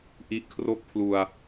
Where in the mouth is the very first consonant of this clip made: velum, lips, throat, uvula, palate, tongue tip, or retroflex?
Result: throat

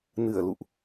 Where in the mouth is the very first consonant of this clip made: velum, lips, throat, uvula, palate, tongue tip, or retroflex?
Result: tongue tip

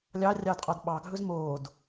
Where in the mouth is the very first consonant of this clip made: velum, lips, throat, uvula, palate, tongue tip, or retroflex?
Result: tongue tip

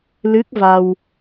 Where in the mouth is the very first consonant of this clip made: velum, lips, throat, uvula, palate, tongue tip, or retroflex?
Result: tongue tip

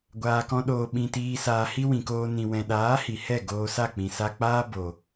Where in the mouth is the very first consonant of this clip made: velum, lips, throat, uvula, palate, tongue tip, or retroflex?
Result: velum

